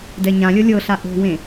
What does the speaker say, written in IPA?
d ɛ ɲ ã lʲ ɤ lʲ ɤ ɬ a ʔ o̤ w ẽ

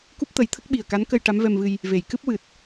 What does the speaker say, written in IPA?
k u˦˥ p̚ t̪ ə˨˩˦ j t̪ʰ ə˦˥ k̚ ɓ i˨˩ ə̯ k a˧˥ n k ə˧ j ʈ a˧˥ m v ɛ˧ m v ɨ˧ j | v e˨˩˨ j k ɨ˦˥ p̚ w ɨ˨˩ t̚

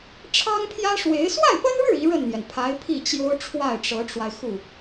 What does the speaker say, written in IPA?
ʈ͡ʂʰ ɑ˥ ŋ pʰ j ä˥ ʂ w e˧˥ ɪ̯ s w a˥˩ ɪ̯ p ə˥ n ɻ ɻ̩˥˩ i˧˥ ɻ ə˥˩ n n̪ j ɛ˩ n pʰ a˧˥ ɪ̯ pʰ i˥˩ t͡ɕ j o˥ ʊ̯ ʈ͡ʂʰ w a˥˩ ɪ̯ ʈ͡ʂ ɤ˧˥ ʈ͡ʂ w a˧ ɪ̯ x u˥˩

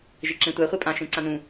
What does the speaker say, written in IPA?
ʒ e ǁ ẽ tʷ æ χʷ e pʼ ã ʃ ẽ ǀ ã n ũ

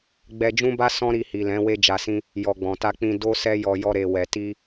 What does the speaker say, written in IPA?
ɡ͡b ɛ˧ d͡ʒ ũ˦ b a˦ s ɔ̃˦ ɾ i˧ h i˨ l ɛ̃˨˦ w e˦ d͡ʒ a˧ s ĩ˦ | j ɔ˨ ɡ͡b ɔ̃˨ t a˧ k͡p ĩ˧ d o˦ s ɛ˦ j ɔ˧ j ɔ˧ ɾ e˨ w ɛ˨ t i˧

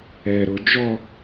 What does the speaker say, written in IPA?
ɛ ɾ ʊ d͡ʒ ɔ

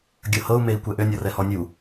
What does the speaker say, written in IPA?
ɡʲ ɤ h ɤ u̯ m e i̯ kʷ ɛ ʔ ø nʲ ɔ r ɛ h ɔ nʲ u

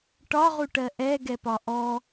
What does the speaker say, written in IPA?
ʈ ɒ ʁ u ʈ ɜ ʔ ɛ ɡ ɛ p ɒ ʔ ɔ

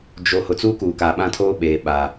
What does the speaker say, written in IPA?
d͡ʒ o˨ h ʊ˨ t͡s uː˦ k uː˨ k aː˨ ɓ ã˦ tʰ oː˦ ɓ eː˨ ɓ a˨

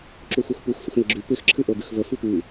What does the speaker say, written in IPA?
ǁ u x u x p u x sʷ ə x n̪ ɪ ɡ͡ǁ y p ɪ x ǁʰ ɨ ʔ o d ɨ x v ə f ɨ tʷ ɨ

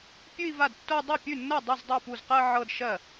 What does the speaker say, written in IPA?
pʲ ʉ˥˧ i̯ v a˥˩ d tː o˥˧ dˤ ɤ˥˩ pʲ ʉ˥˩ nː ɤ˥˩ dˤ ʉ˥˩ z dˤ o˥˩ p u˥˩ z q ɜ˥˧ ʕ ɤ˥˧ d ʃ ɜ˥˩

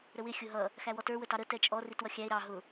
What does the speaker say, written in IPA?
ɾ ə w ɪ xʲ ʊ ɦ ʌ | x æ w ɔ t ə˞ w ə t ɑ ɾ ə t ɛ t͡ʃʼ ɔ r i t w ʌ xʲ æ e̯ ɾ ɑ ɦ ʊ

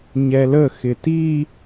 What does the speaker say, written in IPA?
ɲ ɛ l ə x ɪ t i

